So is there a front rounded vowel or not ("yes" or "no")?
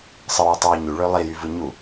yes